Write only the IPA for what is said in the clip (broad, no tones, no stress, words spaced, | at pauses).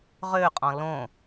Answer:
ʁøqʼɔ̃ lõ